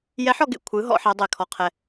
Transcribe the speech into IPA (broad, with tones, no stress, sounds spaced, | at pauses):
j ɛ˧˥ ħ ɔ˧ ɡ ḛ˧ kʷʰ ɯ˩˧ ɦ ɔ̰˩˧ ħ ɛ˩˧ dˤ e˩ kʰ ɔ˧ qʰ ɛ˧